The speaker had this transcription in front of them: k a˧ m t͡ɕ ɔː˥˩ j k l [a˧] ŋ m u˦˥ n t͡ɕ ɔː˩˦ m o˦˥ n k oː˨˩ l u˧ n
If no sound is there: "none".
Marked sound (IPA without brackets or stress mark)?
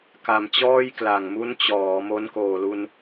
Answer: a˨˩